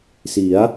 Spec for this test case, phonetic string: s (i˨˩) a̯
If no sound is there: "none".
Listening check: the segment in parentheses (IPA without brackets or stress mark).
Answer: i˩˦